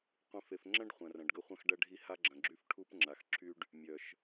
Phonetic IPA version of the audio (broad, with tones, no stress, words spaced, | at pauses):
qʷĩ˨fe˨fŋ͡ǁɐ̃˦ɖ χʷɐ̃˨rɐ̃˨ɖɡə˦ χʷɐ̃˦xɖɐ˦ɖʱi˦ ha˦ɡ͡ǁɐ̃˨ɡ͡ǁy˦f ʈʰu˦p ŋ͡ǁa˨xǁʰy˦ɖ | mʲœ˨ʃ